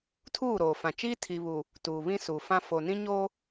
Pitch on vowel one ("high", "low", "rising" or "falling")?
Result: falling